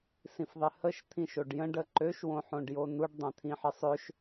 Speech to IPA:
s ĩ f ðˤ ɪ h ə ʃ t̪ʰ ĩ ʃ o ɖ j ə̃ ɖ ə ǃ ø ʃ w õ ħ õ ɖ j o n u ɖ dˤ ɛ̃ t̪ʰ ĩ ħ ɪ sˤ ø ʃ

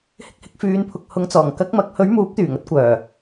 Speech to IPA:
h ɪ˧ k̚ h ɪ˨˥ k̚ f yː˨˧ n pʰ ʊ˨ k̚ h ʊ˨˧ ŋ t͡s ɔː˨˩ ŋ k ɐ˨˥ k̚ m ɐ˨˥ k̚ h ɵ˨˥ ɥ m uː˨˥ p̚ t̪ yː˨˩ ŋ ɐ˨˥ t̚ kʷ œː˨˩

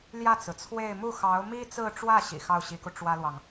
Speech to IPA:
l j ä˥˩ t͡s ɹ̩˩ t͡sʰ w e˥˧ ɪ̯ m u˥˩ x ɑ˧˥ ʊ̯ m i˥ t͡s ɹ̩˥˧ ʈ͡ʂ w ä˥˩ ɕ ḭ˨˩ x ɑ˥˩ ʊ̯ ɕ i˧˥ k u˧ ʈ͡ʂ w ä˥ l w ɑ˨ ŋ

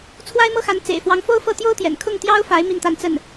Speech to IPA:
t͡sʰ w a˥ ɪ̯ m ɤ˥ x a˧˥ n t͡s ḛ˨˩ ɪ̯ f w ɑ˧˥ ŋ f o˥ ʊ̯ f ɤ˥˩ t̪ j o˥ ʊ̯ t̪ j ɛ̰˨˩ n kʰ ʊ˥˩ ŋ t̪ j ɑ˥ ʊ̯ f a˧˥ ɪ̯ m i˥˧ n t̪ a˥˧ n t͡s ə˥˩ n

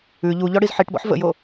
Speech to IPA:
ʉ ʎ u ʎ ɔ ɽ i z ħ i ʈ b ɔ̰ ħ v ə̰ j o

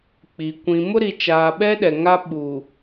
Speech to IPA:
k͡p i˨ kʷ ĩ˨ m ʊ˦ ɾ i˨ t͡ʃ aː˨ ɓ ɛ˦ ɗ ɛ˨ ŋ a˦ ɓ u˨

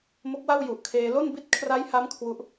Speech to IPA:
m o˦˥ k̚ w a˥˩ w j u˨˩ ʔ kʰ eː˧ l o˥˩ n b i˥˩ t̚ kʰ r a˦˥ j h a˦˥ m kʰ w u˦˥ ʔ

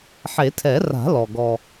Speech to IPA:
ħ e˨˩˦ tʰ ɛ˨˩˦ r a̤˨˩˦ l ɔ˨ ɡ ɔ˨

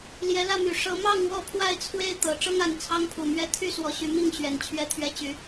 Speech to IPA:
l j ɛ˨˦ l ä˥˨ m y˨˩ ʂ ɤ˨˦ m ɑ˥˨ ŋ w ɔ˥˨ pʰ w a˥˨ ɪ̯ t͡sʰ w e˦ ɪ̯ t̪ ɤ˨˦ ʈ͡ʂ ɤ˦ ŋ a˨˩ n t͡sʰ ɑ˦ ŋ pʰ u˨˩ m ɥ ɛ˥˨ t̪ʰ y˥˨ s w ɔ˨˦ ɕ y˨˦ m i˥˨ ŋ ɕ ɥ ɛ˨˩ n t͡ɕʰ ɥ ɛ˨˦ t̪ʰ ɥ ɛ˨˦ t͡ɕ y˨˦

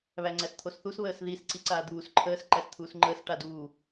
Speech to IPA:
β æ ŋ͡ǀ æ s t̪ʰ o s θ u s β əː s ð i s ǀ i ǀ aː d̪ uː s ǃʰ əː s ǃ æ s t̪ʰ uː s ŋ͡ǃ əː s ʈ a d uː

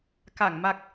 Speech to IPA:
k a˨˩˨ ŋ m a˨˩ k̚

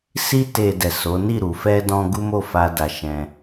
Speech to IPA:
s i˧ t e˨ d ɛ˨ s o˨˦ n i˦˨ ɾ u˨ f ɛ˧ d ɔ̃˧ ɡ u˦ m o˦˨ f a˧ d a˧ ʃ ɛ̃˦

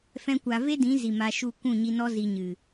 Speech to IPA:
f ɛ̃˦ kʷ a˧ v e˦ d ĩ˨˦ z i˨ m a˧ ʃ u˦˨ kʷ ũ˦˨ ɲ i˧ n ɔ˦ z i˧ ɲ ɨ˨

